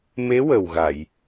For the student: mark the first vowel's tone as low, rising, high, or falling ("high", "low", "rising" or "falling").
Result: rising